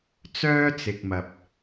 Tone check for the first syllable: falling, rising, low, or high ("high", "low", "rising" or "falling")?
high